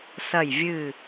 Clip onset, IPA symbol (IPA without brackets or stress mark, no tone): s